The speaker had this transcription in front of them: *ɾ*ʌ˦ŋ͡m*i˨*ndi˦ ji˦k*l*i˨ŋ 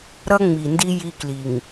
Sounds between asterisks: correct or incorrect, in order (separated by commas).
correct, correct, correct